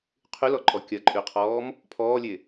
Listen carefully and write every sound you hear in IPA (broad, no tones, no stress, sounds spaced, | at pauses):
qʰ y l ɔ ǃʼ ɔ kʲ ɐ ǃʼ y qʰ ɔː m | pʰ ɔː lʲ e